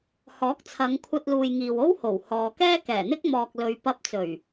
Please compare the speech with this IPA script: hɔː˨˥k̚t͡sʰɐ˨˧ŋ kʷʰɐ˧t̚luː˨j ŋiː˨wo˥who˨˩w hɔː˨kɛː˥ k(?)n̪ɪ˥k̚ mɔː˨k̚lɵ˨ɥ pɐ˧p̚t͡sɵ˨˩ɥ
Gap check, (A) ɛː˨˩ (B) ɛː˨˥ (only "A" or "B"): A